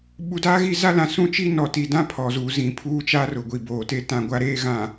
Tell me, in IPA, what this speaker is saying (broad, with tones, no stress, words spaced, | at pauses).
ɓu˨daː˦ɣi˦˨ za˦lã˨sũ˦t͡ʃi˦ nɔ˨ti˨dã˦ pʰɔ˨zuː˨zĩ˨ pʰuː˦t͡ʃa˦ rʊ˨ɡʷi˨ boː˨te˦ tã˦˨ɡʷa˦ɾeː˦ ɣã˨